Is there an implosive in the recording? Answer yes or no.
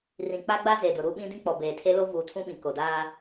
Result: yes